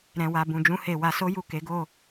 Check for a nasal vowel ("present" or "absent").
present